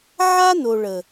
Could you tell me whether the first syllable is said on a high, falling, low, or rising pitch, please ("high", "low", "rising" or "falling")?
high